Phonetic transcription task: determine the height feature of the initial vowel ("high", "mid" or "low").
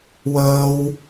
mid